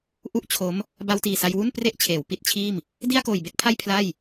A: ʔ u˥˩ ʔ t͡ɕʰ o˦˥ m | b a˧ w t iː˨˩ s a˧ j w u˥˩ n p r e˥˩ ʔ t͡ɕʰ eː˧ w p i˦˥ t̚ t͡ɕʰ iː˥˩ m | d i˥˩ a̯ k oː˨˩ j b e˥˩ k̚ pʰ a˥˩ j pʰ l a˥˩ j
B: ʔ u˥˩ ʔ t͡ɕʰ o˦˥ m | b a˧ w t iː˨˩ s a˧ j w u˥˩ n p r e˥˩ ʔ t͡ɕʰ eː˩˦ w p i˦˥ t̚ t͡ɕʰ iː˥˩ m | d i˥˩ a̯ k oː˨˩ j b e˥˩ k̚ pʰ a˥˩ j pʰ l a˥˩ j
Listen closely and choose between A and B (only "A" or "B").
B